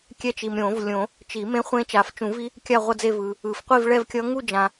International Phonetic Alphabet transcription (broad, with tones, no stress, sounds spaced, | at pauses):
kʲ ɛ˦˥ t͡ʃ i˨ m ɾʲ õ˨˩˦ v lʲ õ˨˩˦ | t͡ʃ i˨˩˦ m ẽ˦˥ χʷ ẽ˦˥ t͡ʃ a˨ f t͡ʃ ũ˨˩˦ v i˦˥ | kʲ a˥˧ ʁʷ ʌ˥˧ d͡z e˥˧ v ɯː˨ | ɯ˨˩˦ f qʷ i˥˧ v ɭ ɛ˥˧ v kʲ ʌ˦˥ ŋ u˥˧ d͡ʒ ã˨